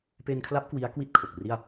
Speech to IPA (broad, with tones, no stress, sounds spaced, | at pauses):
p eː˧ n kʰ l a˦˥ p̚ k w i˦˥ a̯ k w i˥˩ t̚ kʰ o˨˩ k̚ r i˥˩ a̯